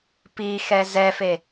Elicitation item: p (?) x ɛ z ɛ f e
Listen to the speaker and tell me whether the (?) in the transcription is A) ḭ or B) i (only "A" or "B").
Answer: B